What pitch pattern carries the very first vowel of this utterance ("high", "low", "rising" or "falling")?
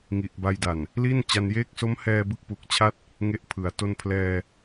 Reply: low